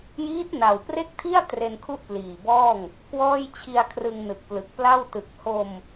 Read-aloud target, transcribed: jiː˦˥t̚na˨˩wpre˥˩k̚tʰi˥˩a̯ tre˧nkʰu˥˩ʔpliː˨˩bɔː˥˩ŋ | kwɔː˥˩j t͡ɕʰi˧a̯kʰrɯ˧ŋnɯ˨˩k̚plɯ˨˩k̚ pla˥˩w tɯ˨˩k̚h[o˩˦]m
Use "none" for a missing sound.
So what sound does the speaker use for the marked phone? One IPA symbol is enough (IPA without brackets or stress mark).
o˧